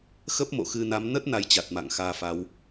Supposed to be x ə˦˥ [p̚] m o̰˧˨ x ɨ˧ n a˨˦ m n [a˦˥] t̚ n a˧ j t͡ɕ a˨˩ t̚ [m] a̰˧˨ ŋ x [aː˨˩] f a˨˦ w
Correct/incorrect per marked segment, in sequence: correct, incorrect: ə˦˥, correct, incorrect: aː˧

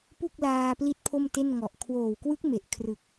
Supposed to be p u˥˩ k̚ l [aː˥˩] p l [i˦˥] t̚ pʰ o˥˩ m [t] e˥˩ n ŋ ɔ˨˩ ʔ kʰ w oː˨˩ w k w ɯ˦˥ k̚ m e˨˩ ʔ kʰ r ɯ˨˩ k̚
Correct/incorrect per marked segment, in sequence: incorrect: aː˧, correct, correct

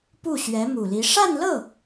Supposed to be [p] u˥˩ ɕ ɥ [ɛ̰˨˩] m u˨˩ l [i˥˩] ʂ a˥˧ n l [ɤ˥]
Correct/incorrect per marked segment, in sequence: correct, incorrect: ɛ˧˥, incorrect: i˧˥, incorrect: ɤ˥˩

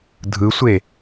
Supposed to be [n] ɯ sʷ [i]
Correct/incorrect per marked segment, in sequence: incorrect: dʱ, incorrect: e

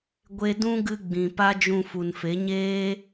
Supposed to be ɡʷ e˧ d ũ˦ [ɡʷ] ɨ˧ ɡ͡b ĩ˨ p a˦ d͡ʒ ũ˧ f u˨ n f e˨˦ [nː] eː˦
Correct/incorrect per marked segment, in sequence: incorrect: ɡ, incorrect: ɲ

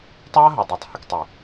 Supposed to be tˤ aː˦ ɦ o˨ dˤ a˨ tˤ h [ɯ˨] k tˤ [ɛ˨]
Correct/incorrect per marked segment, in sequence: correct, incorrect: e˨

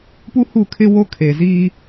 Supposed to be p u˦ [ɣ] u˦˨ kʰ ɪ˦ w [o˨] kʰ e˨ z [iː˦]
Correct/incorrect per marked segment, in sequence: incorrect: h, incorrect: o˦, correct

